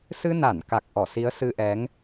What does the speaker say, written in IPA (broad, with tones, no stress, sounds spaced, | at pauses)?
s ɨ˧ n a˧˩ n k a˨˩ k̚ ʔ ɔ˧˩ s i˨˦ ə̯ s ɨ˧ ʔ ɛ˨˦ ŋ